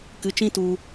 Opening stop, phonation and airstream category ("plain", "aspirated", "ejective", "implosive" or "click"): plain